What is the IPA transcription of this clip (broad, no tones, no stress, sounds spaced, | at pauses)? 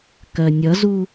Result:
k ɜ nʲ ʌ z u